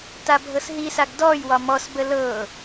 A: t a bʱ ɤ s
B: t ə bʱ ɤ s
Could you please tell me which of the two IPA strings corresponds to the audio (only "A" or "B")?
A